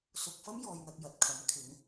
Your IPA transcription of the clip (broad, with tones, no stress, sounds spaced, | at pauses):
s ʊ˧ k̚ f ɐ˥ m j ɔː˨ j n̪ ɐ˨ k̚ j ɐ˨ t̚ kʰ ɐ˨˥ m kʰ ɪ˨˥ ŋ